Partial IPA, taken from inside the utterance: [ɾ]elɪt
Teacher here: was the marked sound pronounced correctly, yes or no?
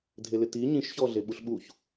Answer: no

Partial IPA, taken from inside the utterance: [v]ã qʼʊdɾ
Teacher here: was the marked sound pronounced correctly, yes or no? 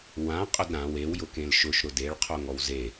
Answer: no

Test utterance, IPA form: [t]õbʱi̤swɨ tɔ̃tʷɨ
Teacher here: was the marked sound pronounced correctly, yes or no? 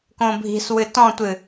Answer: no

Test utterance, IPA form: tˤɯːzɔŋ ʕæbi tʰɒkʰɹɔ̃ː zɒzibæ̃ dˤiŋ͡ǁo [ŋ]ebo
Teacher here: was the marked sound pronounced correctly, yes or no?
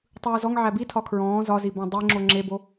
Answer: no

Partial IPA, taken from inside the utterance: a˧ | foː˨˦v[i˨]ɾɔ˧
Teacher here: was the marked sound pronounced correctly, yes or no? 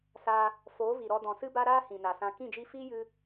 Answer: yes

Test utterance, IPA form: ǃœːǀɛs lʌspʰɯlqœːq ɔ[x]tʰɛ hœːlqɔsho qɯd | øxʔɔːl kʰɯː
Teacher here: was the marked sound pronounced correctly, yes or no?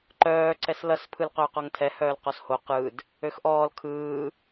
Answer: no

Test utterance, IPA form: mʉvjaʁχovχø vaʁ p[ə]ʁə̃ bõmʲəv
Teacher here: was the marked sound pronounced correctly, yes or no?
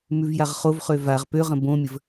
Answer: no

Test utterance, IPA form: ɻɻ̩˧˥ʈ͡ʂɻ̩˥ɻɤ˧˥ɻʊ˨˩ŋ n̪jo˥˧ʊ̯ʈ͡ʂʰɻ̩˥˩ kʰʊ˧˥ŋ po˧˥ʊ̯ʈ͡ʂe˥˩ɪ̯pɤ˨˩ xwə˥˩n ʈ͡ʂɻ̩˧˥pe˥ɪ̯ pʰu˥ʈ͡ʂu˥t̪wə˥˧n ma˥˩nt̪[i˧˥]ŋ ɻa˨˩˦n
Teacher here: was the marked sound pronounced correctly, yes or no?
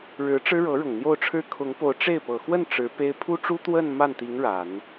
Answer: yes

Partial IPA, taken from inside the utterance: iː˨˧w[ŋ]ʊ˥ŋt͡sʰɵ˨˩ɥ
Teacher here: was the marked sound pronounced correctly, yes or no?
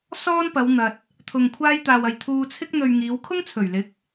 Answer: no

